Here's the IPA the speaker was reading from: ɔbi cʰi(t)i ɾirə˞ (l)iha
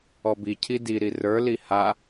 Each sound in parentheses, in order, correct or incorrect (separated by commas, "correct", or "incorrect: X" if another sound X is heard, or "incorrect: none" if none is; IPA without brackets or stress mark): incorrect: d, correct